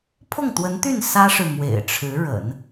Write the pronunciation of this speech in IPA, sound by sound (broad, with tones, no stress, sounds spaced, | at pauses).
pʰ ʊ˥˩ ŋ t̪ w ə˧˥ n t̪ y˥˩ n s ä˥ ʂ ɻ̩˨ m w ḛ˨˩ ɪ̯ ʈ͡ʂʰ ɻ̩˧˥ ɻ ə̰˨˩˦ n